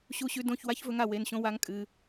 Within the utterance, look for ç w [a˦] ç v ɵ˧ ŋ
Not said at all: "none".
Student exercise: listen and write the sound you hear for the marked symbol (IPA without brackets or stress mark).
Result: a˦